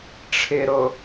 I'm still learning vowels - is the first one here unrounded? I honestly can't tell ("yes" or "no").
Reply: yes